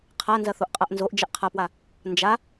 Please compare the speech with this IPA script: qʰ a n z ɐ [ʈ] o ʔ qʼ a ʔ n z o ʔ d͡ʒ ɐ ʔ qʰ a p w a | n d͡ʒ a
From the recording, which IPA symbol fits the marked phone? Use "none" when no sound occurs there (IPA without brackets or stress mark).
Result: θ